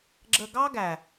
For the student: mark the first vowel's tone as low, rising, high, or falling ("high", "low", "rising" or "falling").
low